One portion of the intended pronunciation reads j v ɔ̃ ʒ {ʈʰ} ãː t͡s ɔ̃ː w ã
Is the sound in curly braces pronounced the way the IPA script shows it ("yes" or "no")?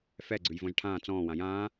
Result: yes